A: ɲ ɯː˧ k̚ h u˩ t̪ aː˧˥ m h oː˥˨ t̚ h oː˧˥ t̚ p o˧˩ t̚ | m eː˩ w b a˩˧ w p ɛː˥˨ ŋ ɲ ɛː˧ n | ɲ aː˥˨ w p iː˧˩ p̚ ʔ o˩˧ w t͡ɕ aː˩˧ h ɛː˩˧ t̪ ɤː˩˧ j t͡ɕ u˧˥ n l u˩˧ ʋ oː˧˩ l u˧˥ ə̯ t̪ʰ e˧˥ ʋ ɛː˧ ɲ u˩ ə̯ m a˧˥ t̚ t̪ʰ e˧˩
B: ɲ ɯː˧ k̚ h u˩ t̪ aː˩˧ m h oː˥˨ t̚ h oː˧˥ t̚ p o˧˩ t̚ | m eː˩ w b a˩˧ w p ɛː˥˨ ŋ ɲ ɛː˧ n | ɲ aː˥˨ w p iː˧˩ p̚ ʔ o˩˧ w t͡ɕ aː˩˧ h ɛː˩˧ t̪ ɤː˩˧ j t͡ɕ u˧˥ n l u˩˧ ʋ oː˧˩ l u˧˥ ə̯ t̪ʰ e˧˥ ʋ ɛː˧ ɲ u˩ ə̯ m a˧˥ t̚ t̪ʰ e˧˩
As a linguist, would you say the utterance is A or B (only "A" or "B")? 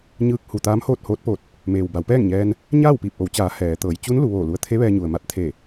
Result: A